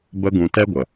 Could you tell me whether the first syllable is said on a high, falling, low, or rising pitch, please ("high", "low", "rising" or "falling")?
high